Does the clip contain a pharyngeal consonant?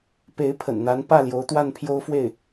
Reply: no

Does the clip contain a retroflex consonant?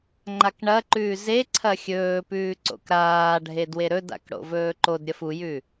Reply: yes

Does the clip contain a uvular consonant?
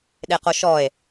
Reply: yes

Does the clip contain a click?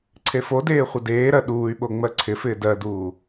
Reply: yes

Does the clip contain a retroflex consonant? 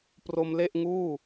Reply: no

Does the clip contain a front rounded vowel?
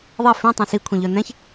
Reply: yes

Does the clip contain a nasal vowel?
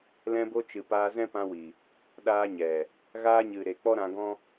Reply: yes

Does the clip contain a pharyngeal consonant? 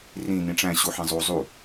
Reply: yes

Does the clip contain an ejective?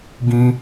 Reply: no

